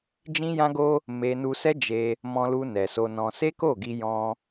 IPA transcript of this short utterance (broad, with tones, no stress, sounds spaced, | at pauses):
d͡ʒ ĩ˦ j ã˦ ɡ o˦ | m e˦ n u˧ s ɛ˦ d͡ʒ e˧ | m ɔ̃˧ l u˧ n ɛ˨ s o˧ n ɔ̃˧ s e˦ k o˦˨ ɡ i˧ j ɔ̃˧